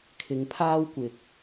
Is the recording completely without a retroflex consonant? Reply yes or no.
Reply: yes